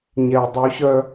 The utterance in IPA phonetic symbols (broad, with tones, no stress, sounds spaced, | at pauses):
ɲ ɛ˨ y̯ dˤ u˨˦ ɕ œ˧